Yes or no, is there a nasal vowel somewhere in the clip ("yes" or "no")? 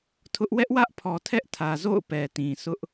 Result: yes